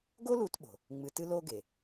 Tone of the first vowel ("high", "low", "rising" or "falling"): high